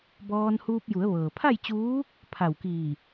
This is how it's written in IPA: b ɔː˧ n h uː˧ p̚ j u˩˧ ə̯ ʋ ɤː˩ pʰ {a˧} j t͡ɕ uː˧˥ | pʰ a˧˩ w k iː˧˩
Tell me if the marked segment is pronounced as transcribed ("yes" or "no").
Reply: no